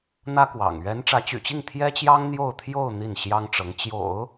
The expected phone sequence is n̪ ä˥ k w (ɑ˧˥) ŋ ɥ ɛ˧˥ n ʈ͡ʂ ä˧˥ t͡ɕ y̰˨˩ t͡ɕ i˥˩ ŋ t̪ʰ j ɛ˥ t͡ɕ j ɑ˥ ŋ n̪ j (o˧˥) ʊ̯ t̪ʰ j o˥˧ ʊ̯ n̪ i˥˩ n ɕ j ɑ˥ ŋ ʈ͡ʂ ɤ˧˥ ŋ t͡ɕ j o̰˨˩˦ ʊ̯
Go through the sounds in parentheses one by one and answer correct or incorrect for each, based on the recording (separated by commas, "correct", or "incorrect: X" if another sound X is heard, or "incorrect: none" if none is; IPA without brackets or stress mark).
incorrect: ɑ̰˨˩, incorrect: o˥˧